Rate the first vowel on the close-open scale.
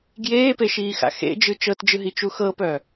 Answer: mid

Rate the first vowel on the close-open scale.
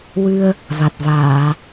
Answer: close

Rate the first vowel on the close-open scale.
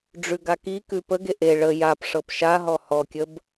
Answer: close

